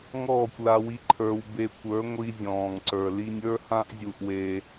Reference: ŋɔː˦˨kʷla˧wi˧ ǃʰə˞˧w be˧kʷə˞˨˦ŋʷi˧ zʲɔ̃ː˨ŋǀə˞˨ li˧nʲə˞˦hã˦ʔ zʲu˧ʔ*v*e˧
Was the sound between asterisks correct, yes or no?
no